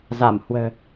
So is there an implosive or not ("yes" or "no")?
no